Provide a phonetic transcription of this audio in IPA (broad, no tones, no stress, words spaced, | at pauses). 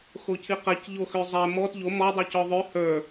xocʰiqɛc ʎoxøzˤɛ mɔt ʎo mɔ dˤucɔðˤø hə˞